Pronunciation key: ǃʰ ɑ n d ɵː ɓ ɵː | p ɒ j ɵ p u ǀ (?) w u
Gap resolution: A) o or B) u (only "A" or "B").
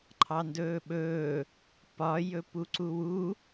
B